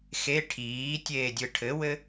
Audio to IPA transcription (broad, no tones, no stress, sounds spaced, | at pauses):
x e ʈʰ iː tʲ eː dʲ ɯ ʈʰ ɘ w ɘ